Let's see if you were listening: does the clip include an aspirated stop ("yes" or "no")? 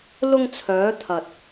yes